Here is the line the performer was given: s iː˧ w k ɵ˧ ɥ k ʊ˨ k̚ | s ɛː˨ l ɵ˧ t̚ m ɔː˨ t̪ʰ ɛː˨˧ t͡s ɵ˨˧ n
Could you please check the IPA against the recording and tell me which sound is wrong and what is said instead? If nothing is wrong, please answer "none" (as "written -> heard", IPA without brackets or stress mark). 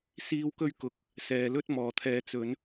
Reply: none